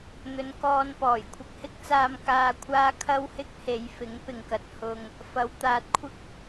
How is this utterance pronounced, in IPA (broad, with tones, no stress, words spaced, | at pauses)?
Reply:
n̪ɵ˨˧nkɔː˧npɔː˨˩j kʷʰɐ˧k̚hɪ˥k̚t͡saː˧m kaː˧kʷʰaː˥ kʰɐ˥w hɪ˥k̚he˨˧jfɪ˨˥ŋ pɪ˨ŋkɐ˨˥t̚ hʊ˧ŋ | fɐ˨˧wt̪aː˧t̚kʷʰɪ˥k̚